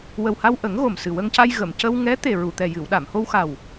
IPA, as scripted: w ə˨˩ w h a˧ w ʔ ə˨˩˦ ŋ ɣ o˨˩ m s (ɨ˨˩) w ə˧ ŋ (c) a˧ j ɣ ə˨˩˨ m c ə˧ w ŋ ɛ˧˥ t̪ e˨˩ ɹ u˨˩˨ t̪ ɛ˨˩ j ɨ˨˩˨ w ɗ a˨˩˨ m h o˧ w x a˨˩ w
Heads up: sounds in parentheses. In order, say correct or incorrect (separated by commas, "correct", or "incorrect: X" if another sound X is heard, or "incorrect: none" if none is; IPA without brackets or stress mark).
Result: correct, correct